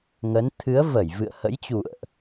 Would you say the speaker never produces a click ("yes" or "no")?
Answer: yes